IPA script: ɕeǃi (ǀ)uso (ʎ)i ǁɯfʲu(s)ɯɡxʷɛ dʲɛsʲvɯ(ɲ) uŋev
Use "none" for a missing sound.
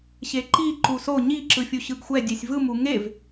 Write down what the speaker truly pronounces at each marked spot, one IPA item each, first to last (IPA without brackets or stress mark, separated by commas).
ǃ, ɲ, ɕ, m